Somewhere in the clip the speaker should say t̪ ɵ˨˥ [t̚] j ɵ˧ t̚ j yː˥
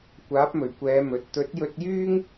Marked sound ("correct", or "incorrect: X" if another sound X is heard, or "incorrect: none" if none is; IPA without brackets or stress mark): correct